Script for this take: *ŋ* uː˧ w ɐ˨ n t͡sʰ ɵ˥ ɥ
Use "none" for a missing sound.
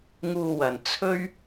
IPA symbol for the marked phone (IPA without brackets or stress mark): ŋ